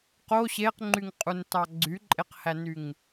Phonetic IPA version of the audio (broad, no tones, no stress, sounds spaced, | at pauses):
q o ɕ e q ŋ͡ǃ y ŋ qʼ u n t ɑ ɡ͡ǀ y ǃʼ e q h æ n y ŋ